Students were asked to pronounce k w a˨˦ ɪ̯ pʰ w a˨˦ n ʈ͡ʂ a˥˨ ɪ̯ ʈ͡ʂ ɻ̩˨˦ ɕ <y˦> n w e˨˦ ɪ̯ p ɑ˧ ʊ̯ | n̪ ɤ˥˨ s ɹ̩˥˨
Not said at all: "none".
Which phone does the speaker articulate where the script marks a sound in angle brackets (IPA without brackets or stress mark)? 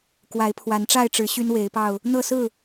y˦